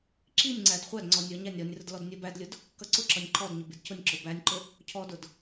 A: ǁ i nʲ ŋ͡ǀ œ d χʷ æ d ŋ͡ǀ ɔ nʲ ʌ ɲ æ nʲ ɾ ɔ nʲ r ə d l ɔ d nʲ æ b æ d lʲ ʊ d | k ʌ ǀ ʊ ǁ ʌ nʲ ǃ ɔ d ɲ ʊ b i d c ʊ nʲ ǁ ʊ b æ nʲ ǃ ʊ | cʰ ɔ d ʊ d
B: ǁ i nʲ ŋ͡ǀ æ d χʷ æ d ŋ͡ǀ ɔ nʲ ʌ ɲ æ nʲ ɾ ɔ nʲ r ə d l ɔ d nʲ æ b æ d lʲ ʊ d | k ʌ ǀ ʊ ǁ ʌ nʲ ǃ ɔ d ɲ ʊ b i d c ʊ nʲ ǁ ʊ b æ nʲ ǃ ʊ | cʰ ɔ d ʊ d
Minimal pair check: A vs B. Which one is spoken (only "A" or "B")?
B